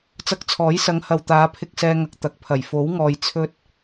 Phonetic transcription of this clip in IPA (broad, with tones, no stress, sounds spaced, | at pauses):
t͡s ɐ˧ k̚ t͡sʰ ɔː˨˥ j s ɐ˨˧ ŋ h ɐ˨ w t̪ aː˨˧ pʰ ɪ˧ k̚ s ɛː˧ ŋ ɐ˨ k̚ t̪ ɐ˨˥ k̚ pʰ ɐ˨˩ j f o˨˥ w ŋ ɔː˨ j t͡sʰ ɵ˥ t̚